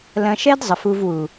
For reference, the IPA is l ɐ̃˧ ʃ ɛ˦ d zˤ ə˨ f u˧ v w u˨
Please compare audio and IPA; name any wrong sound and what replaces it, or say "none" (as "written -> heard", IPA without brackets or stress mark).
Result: none